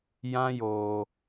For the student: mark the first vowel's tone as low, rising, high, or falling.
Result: high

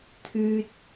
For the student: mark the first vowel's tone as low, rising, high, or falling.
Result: high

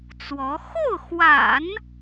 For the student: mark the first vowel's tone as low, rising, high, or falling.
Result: rising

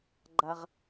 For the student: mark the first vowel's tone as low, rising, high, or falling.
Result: low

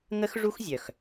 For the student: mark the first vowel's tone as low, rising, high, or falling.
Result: high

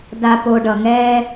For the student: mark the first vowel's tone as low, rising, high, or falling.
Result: low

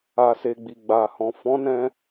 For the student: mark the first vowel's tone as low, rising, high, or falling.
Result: low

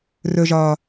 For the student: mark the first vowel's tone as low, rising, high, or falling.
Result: low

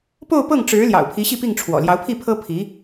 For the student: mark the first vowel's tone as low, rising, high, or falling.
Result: falling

